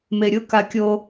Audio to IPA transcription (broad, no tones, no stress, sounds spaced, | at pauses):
m e ɾʲ ʊ k a kʲ o